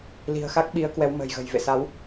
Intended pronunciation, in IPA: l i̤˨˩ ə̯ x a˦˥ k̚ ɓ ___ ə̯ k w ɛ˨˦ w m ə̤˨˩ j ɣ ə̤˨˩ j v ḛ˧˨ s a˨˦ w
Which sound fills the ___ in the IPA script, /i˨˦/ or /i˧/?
i˨˦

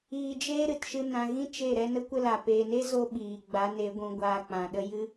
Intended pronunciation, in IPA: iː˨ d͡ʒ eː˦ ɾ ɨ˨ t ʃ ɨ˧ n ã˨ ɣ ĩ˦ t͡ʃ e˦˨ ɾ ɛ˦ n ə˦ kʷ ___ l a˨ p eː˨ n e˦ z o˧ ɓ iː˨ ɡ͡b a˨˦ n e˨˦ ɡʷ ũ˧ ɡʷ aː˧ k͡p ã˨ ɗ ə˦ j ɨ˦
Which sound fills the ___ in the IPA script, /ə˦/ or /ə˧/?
ə˦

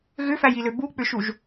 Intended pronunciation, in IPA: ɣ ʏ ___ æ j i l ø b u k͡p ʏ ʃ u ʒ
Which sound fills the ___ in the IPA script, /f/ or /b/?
f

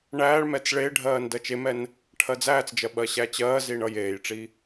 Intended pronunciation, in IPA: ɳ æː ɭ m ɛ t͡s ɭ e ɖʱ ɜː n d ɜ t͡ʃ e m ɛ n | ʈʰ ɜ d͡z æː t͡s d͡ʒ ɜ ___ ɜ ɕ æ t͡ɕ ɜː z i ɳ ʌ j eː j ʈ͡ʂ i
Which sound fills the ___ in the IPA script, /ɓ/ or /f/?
ɓ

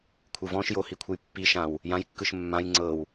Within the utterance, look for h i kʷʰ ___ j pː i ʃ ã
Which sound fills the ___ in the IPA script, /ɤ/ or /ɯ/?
ɯ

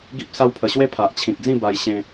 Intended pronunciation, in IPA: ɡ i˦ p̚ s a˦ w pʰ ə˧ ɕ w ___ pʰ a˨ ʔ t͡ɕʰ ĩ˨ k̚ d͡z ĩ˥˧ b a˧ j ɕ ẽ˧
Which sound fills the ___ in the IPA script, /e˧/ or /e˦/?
e˦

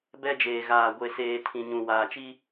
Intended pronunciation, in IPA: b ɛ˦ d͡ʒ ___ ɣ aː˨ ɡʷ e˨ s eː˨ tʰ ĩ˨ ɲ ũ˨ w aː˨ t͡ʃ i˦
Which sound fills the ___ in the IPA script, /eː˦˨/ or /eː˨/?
eː˨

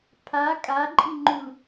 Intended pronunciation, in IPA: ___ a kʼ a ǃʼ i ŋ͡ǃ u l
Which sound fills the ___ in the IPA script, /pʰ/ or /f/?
pʰ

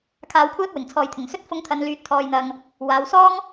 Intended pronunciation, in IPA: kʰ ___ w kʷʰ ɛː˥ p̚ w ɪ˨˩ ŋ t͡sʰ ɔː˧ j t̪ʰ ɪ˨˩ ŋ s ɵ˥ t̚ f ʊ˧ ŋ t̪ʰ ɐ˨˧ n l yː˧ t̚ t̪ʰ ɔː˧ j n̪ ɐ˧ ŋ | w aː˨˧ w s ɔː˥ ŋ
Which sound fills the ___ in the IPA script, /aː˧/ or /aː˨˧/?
aː˧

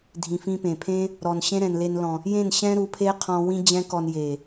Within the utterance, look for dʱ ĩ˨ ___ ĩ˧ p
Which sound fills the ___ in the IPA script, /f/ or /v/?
f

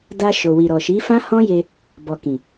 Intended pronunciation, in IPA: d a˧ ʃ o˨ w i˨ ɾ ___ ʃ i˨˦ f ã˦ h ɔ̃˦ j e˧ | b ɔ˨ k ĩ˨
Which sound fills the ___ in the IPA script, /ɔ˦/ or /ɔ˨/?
ɔ˨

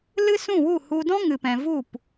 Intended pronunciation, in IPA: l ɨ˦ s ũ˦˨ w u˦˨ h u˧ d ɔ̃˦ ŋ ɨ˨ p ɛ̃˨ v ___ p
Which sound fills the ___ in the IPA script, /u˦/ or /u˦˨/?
u˦˨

